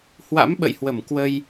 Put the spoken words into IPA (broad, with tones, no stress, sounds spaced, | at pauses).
h w a̰˧˥ m ɓ ə̰˧˨ j h w ə˧˩ m k w ə˧ j